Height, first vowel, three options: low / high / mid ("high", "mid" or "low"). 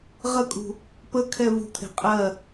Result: mid